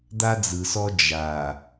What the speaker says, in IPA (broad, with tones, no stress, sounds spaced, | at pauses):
d̪ a˦ d͡z ɯ˨ s ɔ˦ d͡ʒ a˨